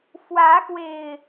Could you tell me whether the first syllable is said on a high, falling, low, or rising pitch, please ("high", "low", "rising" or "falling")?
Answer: rising